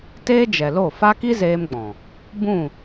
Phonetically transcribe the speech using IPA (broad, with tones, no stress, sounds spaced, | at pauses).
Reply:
t eː˦ d͡ʒ ɛ˨ l o˦˨ f a˦ k i˦ z eː˧ m ɡ͡b ɔ̃˨ | b ũ˦˨